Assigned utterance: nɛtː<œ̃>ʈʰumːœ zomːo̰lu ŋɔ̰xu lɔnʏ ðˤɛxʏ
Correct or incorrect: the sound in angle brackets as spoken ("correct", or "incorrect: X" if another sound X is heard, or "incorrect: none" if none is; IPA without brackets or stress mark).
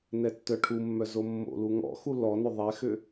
incorrect: œ